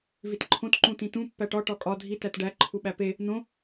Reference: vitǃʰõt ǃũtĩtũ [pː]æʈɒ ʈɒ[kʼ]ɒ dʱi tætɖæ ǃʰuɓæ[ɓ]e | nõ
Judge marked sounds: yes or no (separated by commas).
yes, yes, no